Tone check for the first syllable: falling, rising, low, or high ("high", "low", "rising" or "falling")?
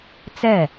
falling